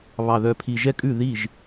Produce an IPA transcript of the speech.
β ɑ˨˩ ð œ˨˩ pʰ i˨˩ ʒ ɛ˥˧ kʼ ʉ˥˩ ð i˥˩ ʒ

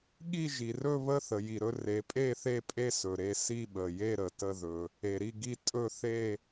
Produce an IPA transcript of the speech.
ɠ i˥˨ ʒ i˩ r ɵ˥˨ β ə˥˨ θ ə˩ j i˩ ɾ ɵ˥˨ r e˩ pʼ e˥˨ θ e˥˨ pʼ e˥˨ s ɵ˩ ɾ e˥˨ s i˥˨ ɓ ə˩ j e˥˨ ɾ ə˩ t ə˥˨ ð ɵ˩ | e˩ ɾ i˥˨ ɡ i˥˨ tʼ ɵ˥˨ θ e˥˨

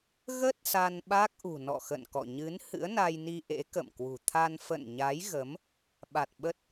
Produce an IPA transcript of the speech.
ɣ ə˦˥ t̚ s a˧ n ɓ a˦˥ k̚ ʔ ṳ˨˩ n ɔ̰˧˨ x ə̰˧˨ n k ɔ̰˧˨ ɲ ɨ˨˦ n h ɨ̰˧˥ ə̯ n a˧ j n i˧ ʔ ḛ˧˥ k ə̰˧˨ m k w ṳ˨˩ t̪ʰ a˧ n f ə̰˧˨ n ɲ a˨˦ j ɣ ə˨˦ m | ɓ a˨˩ t̚ ɓ ə˦˥ t̚

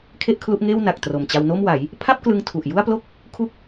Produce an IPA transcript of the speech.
kʰ e˥˩ ʔ kʰ l u˦˥ ʔ ŋ eː˥˩ w n a˨˩ k̚ t r o˨˩ m t͡ɕ a˧ w n o˥˩ m w a˩˦ j | pʰ a˥˩ p̚ k l ɯ˧ ŋ tʰ u˨˩ ʔ j u˥˩ a̯ p l o˥˩ k̚ | kʰ u˥˩ k̚

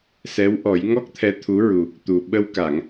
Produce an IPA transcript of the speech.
s ɛ˧˥ w ʔ ɔ˨˩˦ j ŋ ɔ˦˥ k̚ t̪ʰ ɛ˧˥ t̪ʰ u˧˥ ɹ u˨˩ | t̪ u˨˩ ɓ ə˧ w k a˨˩˨ ŋ

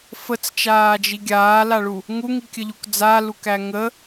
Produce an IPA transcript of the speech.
f ə t͡s t͡ʃ aː d͡ʒ i ɡʲ aː l a ɭ u | ŋ u ŋ i kʲ ə ʎ u k d͡z a l u k æ ŋ ə

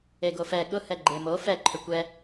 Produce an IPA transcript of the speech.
e ɡ o f ɛ ɠ ʊ h ɛ ɡ͡ǃ e m o f ɛ ǃʰ ʏ kʷ ɛ

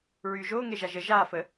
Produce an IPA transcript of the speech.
ɹ yː ʒ oː ŋ e ʒ a ʒ ə ʒ aː f ə

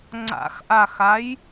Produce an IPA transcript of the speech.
ŋ͡ǀ a̰ x ʔ a x a j

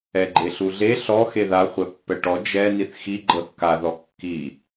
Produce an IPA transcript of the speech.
ɛ ɡ͡ǃ e ɬ u ɮ e ɬ ɔ x e ð a χʷ ɛ pː ɛ ʈ ɔ d͡ʒ ɛ n i θ x i ɡ͡ǃ ɤ θ k a ð ɔ kː i

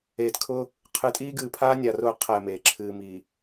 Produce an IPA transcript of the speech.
eː˨ t kʰ ʊ˦ | qʰ ɨ˨˦ tʼ iː˦ ɡ ɨː˨ pʰ aː˦ nʲ a˨ r ʊː˦˨ qʰ ɛ˦˨ m eː˨ ǁʰ ɨː˨ m iː˨

